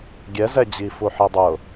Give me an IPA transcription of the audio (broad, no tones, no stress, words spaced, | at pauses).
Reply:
ɡʲɛzɛ d͡ʑifuħi dˤʊ